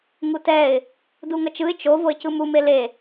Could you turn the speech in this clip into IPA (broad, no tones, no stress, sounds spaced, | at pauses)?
ŋ u t ɛ ɪ̯ | d u ŋ ʌ t͡ʃ ɯ ɪ̯ t͡ʃ o v o ɪ̯ c ɯ m u m e l e